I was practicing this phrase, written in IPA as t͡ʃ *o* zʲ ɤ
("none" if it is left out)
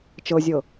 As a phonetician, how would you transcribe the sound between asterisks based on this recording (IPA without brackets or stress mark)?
ɤ